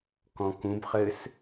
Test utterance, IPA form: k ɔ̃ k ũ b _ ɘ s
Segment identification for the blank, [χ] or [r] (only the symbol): χ